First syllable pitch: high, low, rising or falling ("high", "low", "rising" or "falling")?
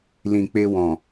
low